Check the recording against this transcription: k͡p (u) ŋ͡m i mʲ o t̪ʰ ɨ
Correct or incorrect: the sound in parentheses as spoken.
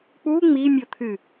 correct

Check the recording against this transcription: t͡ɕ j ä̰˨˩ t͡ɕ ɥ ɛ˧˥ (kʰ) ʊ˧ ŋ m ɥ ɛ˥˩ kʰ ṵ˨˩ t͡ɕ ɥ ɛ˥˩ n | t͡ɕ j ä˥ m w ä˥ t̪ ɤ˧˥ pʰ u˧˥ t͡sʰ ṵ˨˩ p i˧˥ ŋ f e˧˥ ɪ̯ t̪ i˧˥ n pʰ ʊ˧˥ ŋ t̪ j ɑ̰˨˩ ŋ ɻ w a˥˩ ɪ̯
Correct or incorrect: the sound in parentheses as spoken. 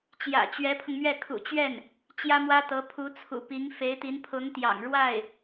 incorrect: pʰ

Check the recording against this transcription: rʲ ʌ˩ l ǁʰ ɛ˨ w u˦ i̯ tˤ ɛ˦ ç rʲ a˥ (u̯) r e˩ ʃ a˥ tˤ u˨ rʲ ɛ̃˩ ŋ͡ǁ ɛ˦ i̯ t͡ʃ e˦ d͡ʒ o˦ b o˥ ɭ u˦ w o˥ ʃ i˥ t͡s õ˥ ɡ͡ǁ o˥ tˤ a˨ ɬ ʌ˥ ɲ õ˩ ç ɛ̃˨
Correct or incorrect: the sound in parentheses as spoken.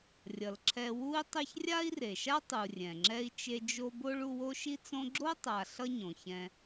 incorrect: i̯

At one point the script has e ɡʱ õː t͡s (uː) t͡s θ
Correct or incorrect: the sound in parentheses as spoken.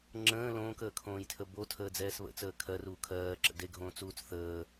correct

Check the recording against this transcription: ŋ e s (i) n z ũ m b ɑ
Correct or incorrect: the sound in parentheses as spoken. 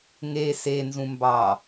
incorrect: e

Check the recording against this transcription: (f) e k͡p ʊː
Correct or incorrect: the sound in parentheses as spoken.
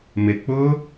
incorrect: m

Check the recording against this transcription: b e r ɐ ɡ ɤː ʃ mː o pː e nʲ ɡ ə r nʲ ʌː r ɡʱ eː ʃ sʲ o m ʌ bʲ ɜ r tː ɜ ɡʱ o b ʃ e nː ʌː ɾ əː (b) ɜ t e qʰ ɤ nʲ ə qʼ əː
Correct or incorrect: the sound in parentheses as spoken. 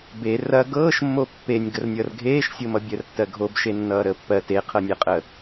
incorrect: pː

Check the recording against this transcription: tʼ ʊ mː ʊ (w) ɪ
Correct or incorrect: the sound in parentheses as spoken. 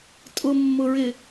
incorrect: ɹ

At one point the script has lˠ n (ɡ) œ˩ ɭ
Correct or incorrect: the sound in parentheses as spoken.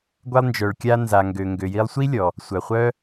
incorrect: d͡ʒ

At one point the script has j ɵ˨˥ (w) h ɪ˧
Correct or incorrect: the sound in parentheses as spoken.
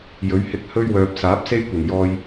incorrect: ɥ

